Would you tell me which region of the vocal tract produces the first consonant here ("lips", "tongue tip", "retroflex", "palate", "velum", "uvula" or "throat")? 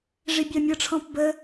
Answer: retroflex